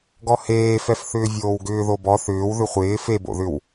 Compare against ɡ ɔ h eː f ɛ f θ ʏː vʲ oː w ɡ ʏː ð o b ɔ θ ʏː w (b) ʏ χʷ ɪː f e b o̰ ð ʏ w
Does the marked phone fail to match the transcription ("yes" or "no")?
yes